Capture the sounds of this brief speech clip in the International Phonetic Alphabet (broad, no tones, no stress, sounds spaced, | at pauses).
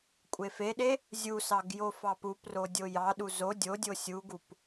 kʷʼ e f e ɗ e | zʲ u s ɑ ɡ j o f ɑ p u p r o dʲ o j ɑ ɗ u z o dʲ o dʲ o sʲ u ɡ u p